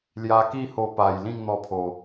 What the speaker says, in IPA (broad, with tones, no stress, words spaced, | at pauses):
lja˧ki˥˧ho˧pa˨˩j lĩ˥˧ŋn̪ɔ˧pʰo˨˩